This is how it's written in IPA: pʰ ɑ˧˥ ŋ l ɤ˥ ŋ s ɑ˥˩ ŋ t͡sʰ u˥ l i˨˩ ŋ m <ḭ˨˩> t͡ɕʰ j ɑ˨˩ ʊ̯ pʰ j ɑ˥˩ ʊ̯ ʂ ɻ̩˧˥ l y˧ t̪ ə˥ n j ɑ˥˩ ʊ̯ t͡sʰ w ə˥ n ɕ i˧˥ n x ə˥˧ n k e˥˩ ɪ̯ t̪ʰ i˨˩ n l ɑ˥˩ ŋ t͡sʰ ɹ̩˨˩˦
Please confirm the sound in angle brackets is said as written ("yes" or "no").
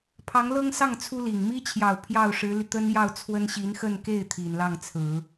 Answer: no